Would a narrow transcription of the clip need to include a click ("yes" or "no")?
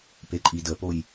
yes